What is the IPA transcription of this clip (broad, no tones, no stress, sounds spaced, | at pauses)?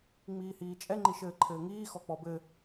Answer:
ŋ͡m iː h iː t͡ʃʼ ɛ ŋ͡ǃ i ʃ ɘː ǃʰ ɘː ŋ iː x ɔ k͡p ɔ b ɘ